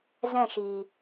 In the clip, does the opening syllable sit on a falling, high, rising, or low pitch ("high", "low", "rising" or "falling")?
falling